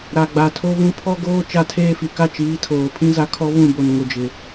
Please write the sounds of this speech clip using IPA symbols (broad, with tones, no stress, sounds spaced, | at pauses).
ɾ a˨ ɡ͡b a˨ tʰ o˦ β ũ˦ pʰ ɔ˦ ɡ oː˦ t͡ʃ a˦˨ tʰ eː˦ f i˨ k a˦ t͡ʃ iː˨˦ tʰ oː˨ pʰ ĩ˦ z a˦ kʰ ɔ˦ β ũ˦˨ b o˨ n ŋ ʊ˨ d͡ʒ ɪ˨